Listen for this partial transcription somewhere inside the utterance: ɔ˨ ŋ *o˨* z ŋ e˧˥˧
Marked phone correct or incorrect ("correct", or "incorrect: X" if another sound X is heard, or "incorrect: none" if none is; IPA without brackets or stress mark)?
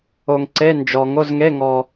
incorrect: o˧˥˧